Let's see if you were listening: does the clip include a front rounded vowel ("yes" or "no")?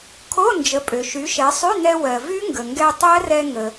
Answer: yes